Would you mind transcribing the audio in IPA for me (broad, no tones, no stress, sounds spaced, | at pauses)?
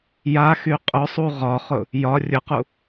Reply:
j a x y qʼ ʊ sˤ u ʁ ɒ χ ʊ | j ɒ rʲ ʊ q u